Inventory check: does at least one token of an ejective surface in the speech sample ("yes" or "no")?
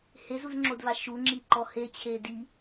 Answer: no